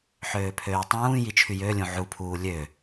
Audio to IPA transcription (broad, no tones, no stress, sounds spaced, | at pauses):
ħ øː pʰ øː tˤ ũː j i t͡ʃʰ y j ø lʲ ũ ʕ u pʰ uː lʲ ø